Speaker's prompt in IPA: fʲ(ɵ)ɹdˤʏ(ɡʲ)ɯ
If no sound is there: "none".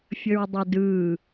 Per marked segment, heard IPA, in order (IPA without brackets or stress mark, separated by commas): ə, d